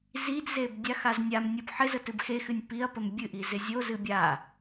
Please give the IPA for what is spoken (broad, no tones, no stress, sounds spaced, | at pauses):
z i d z e b dʲ a x a z nʲ a m nʲ o b ħ ɪ z ə t ɨ b x e x ɨ nʲ p i ɐ̯ p ə m bʲ ɨ ʔ i z ɪ zʲ o z ɨ bʲ a